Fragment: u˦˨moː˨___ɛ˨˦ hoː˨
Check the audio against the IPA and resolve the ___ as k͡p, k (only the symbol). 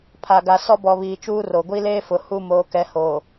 k